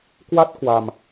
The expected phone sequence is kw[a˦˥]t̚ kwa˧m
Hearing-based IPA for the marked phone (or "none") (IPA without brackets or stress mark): a˦˥